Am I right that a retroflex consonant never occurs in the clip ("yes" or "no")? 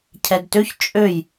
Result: yes